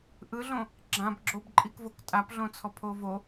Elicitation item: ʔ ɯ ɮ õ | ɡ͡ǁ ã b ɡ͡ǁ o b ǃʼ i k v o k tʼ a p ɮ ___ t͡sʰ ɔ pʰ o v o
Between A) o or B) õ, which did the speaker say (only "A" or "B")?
B